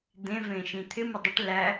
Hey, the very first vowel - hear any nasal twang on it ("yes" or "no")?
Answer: yes